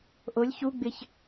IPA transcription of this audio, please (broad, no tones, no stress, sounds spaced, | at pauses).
ʔ o lʲ ç u ɡ͡b ɪ ç